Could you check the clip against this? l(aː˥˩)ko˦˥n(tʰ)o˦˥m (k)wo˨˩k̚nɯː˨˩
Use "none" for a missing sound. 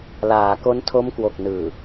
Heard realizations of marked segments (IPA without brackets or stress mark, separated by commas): aː˩˦, tʰ, k